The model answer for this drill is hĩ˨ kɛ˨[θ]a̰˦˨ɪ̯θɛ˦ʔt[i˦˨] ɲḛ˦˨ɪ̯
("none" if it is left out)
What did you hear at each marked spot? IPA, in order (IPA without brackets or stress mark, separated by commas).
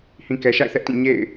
ʃ, ĩ˦˨